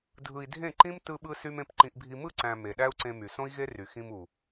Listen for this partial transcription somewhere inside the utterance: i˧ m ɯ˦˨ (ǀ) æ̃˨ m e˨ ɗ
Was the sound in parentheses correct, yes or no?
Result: yes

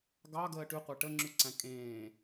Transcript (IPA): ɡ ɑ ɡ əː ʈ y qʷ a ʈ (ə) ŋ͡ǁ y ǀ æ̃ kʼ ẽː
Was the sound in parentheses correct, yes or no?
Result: yes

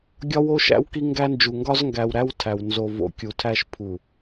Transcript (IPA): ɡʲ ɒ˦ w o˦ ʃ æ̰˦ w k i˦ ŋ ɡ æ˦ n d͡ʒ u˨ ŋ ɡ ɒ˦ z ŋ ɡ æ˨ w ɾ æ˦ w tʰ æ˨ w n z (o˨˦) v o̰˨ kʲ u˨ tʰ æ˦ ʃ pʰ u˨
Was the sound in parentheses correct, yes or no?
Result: no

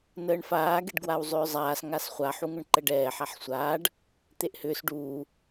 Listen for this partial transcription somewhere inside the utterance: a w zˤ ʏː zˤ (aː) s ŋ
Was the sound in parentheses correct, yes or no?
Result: yes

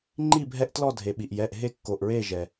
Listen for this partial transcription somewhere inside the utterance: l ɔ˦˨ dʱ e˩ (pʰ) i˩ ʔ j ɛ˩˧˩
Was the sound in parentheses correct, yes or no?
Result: no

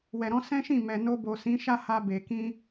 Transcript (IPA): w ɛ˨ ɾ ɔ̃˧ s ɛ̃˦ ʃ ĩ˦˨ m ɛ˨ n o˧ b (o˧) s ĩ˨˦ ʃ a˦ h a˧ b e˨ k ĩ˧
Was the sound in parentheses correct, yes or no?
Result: no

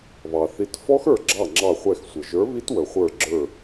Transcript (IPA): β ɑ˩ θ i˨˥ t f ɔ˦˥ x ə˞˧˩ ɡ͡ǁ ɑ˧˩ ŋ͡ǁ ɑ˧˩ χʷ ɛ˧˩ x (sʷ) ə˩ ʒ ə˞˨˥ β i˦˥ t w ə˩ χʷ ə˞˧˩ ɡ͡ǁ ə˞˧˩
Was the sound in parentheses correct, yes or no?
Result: yes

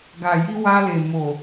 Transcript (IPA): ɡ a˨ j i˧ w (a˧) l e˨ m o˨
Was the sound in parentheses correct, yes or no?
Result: yes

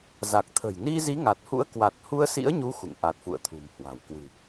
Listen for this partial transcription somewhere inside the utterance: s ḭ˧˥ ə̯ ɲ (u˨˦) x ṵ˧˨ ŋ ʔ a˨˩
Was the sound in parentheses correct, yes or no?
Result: yes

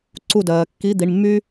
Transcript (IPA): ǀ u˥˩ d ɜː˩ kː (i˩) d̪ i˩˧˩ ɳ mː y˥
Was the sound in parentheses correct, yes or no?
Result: no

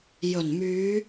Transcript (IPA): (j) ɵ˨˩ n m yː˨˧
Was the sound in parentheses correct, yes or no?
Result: yes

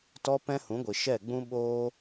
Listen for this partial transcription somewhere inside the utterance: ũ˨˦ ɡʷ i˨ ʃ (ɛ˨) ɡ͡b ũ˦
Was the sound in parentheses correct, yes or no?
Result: no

